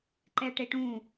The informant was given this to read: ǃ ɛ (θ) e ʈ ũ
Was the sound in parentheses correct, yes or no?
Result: no